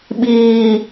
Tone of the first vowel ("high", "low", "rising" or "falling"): low